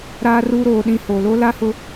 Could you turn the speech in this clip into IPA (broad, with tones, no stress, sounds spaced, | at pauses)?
ɾ aː˨ r uː˨ ɾ oː˨ ɗ ĩ˨ h o˨ l o˦ l a˦ h ʊ˦